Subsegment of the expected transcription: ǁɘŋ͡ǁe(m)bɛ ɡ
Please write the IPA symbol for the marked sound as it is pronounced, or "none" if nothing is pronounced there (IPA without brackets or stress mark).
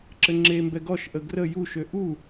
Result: m